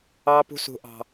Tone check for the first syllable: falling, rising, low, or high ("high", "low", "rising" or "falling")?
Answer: high